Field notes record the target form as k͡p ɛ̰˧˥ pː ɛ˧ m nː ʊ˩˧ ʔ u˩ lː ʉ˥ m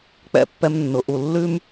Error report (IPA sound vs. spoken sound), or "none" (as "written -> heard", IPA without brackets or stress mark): none